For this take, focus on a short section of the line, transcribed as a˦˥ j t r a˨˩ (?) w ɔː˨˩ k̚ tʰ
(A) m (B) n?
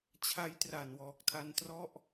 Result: B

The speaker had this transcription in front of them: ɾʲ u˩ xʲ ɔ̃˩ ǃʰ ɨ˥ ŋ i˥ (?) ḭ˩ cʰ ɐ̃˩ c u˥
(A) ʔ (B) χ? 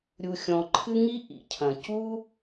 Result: A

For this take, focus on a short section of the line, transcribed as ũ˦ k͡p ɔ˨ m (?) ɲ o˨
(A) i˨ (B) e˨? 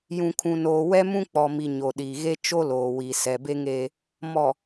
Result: A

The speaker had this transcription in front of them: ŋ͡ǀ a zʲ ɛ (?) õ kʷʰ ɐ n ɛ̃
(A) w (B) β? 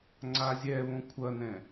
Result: B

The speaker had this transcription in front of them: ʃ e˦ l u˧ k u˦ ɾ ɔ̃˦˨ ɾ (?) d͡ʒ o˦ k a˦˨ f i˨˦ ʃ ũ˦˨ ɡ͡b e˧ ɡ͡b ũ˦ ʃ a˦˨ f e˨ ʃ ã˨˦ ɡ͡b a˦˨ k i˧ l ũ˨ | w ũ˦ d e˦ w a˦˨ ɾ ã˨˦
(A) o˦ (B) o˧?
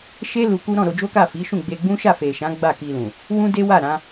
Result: B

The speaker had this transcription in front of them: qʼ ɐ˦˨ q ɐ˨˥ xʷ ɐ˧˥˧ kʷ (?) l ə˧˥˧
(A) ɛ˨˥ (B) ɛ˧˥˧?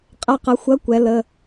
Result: A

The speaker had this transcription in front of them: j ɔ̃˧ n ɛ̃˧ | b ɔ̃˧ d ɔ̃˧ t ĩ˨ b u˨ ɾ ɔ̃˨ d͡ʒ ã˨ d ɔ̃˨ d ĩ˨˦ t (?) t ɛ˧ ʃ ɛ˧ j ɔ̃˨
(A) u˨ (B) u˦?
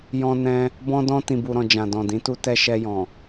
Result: B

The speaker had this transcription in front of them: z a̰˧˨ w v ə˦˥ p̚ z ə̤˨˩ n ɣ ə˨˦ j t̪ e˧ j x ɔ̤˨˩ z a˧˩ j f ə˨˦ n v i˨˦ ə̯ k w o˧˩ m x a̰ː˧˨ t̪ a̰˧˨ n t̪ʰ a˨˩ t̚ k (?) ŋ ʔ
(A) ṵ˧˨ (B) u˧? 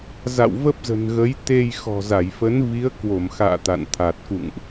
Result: A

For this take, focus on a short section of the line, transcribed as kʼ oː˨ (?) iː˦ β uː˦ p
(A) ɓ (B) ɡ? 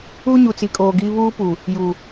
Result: B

